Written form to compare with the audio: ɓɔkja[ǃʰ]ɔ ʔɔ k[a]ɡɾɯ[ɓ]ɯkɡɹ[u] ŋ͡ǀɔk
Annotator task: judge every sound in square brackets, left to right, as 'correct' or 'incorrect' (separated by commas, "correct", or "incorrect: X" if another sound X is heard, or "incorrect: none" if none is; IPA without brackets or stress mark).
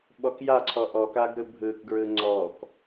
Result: incorrect: ǀʰ, correct, incorrect: bʱ, incorrect: ɯ